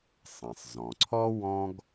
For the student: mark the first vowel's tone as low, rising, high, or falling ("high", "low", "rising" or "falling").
low